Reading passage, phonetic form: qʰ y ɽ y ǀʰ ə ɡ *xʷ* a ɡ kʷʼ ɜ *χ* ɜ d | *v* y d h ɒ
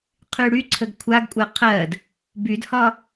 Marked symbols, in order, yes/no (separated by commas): no, no, no